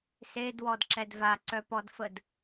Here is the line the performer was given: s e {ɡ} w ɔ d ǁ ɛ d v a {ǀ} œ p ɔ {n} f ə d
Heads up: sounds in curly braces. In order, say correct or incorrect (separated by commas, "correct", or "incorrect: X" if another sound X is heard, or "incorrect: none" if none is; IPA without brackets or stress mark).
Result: incorrect: d, correct, incorrect: d